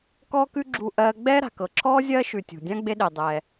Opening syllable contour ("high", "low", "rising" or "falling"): high